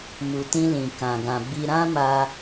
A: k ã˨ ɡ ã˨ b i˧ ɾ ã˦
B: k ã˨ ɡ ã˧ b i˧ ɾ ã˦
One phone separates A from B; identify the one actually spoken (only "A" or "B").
A